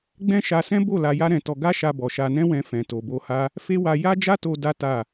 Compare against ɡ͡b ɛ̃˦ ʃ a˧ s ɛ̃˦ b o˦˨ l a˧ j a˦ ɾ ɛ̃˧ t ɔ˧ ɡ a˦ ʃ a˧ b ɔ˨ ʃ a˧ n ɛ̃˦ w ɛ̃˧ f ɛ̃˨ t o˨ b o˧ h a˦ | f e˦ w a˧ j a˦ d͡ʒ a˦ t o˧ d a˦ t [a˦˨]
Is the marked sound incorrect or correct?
correct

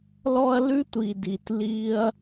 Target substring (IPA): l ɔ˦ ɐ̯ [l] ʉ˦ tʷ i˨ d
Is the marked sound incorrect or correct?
correct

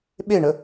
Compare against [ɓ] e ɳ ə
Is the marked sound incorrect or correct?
correct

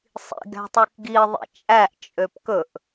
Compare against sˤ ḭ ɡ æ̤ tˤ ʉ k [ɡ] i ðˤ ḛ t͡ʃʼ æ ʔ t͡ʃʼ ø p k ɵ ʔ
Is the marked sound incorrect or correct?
correct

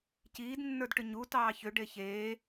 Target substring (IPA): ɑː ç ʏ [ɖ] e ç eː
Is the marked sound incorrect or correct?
correct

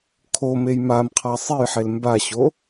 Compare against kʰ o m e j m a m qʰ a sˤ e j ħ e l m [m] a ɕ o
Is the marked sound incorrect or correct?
incorrect: b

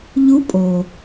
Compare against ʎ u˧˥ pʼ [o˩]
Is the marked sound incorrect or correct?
correct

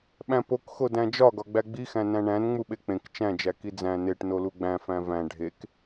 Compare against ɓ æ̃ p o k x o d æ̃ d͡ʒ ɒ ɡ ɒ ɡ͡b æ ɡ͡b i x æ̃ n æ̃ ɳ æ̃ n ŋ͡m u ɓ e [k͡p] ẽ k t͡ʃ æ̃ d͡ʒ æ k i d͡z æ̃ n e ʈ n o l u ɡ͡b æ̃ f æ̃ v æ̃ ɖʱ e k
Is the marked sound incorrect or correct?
correct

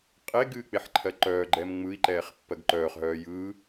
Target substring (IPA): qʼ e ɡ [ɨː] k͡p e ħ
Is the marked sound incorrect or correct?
correct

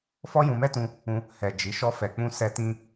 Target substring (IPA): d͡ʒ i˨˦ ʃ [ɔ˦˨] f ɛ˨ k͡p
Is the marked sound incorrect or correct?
incorrect: ɔ˧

